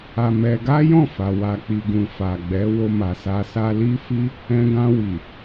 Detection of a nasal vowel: present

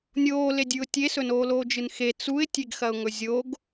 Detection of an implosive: absent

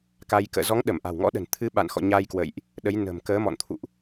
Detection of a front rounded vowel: absent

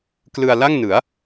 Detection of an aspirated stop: absent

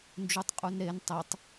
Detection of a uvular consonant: present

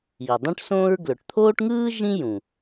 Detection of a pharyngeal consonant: absent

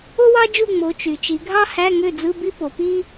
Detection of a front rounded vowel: present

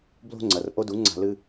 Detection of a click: present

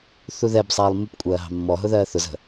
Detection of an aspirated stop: absent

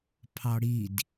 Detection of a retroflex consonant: present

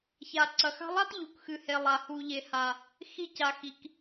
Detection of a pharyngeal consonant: absent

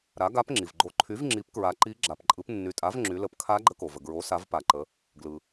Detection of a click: present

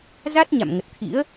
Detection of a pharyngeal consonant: absent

